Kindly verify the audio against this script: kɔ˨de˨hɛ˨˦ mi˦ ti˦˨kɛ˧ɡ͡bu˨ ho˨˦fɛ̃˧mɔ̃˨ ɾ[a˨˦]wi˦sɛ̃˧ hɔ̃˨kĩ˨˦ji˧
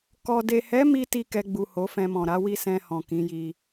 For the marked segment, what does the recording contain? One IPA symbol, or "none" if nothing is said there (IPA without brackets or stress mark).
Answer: a˨˦